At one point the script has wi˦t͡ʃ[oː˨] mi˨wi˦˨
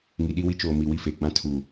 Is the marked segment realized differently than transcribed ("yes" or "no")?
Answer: no